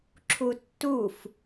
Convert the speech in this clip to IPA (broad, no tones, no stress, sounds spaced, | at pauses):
ǁʰ u tː u f